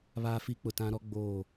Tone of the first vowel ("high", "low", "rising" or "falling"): high